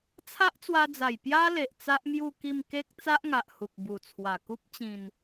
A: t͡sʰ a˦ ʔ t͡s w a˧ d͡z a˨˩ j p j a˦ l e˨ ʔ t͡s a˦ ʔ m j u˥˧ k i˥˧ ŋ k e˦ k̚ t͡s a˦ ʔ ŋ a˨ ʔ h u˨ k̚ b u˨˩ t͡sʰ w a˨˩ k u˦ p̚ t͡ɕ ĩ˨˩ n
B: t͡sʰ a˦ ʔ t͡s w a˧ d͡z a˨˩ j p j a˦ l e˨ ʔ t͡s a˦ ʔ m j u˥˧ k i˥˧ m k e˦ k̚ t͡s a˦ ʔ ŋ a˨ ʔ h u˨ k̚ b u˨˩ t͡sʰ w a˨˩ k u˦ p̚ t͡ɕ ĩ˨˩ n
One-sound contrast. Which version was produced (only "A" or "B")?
B